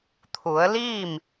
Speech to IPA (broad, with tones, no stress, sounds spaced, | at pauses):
t̪ʰ u˩˧ ə̯ l iː˥˨ m